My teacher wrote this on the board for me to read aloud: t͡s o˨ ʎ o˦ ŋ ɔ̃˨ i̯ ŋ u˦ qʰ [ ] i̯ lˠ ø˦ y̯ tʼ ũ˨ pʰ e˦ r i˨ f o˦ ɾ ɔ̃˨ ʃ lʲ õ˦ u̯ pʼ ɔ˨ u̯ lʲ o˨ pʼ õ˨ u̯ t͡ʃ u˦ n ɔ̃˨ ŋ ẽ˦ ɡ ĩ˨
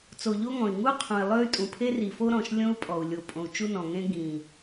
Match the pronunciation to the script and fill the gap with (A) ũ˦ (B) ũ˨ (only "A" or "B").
B